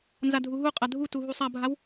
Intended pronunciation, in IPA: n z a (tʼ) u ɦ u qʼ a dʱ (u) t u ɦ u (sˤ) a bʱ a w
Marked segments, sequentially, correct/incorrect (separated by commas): incorrect, correct, correct